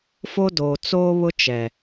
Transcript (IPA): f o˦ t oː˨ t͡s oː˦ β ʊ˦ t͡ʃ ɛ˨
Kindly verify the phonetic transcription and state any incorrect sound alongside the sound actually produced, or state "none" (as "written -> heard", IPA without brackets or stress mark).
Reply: t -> d